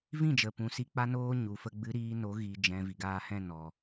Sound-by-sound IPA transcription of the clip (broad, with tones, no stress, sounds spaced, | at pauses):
v ĩ˦˨ d͡ʒ ə˨ p ũ˨ s i˧ k͡p a˧ n oː˧ ɲ u˨ f ə˧ ɡ͡b ɨ˨ ɾ iː˧ n o˨˦ ɣ iː˨ d͡ʒ ɛ̃˨ v i˨ ɡ aː˧ h ɛ̃˦˨ n ɔ˨